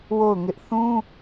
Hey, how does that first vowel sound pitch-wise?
falling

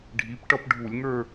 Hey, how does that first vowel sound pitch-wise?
rising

